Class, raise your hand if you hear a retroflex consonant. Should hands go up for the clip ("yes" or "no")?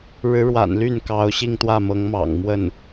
yes